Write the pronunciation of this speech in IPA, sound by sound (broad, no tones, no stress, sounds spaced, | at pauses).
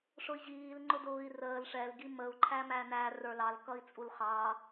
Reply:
ʂ ʊ i̯ ʑ iː l ŋ͡ǃ ʊ d ʊː i̯ r əː l ʂ ɛ l ɡ i m ə u̯ ǃʰ æ m æ n æ r ə˞ l ɑ l k ʌ i̯ t͡sʼ u l χ ɑ